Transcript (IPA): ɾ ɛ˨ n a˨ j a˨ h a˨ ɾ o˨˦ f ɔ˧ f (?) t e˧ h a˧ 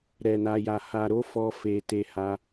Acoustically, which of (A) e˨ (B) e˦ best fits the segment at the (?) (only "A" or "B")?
A